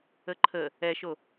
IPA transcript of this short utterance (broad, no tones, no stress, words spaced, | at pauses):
əǃʰə | ɛʃo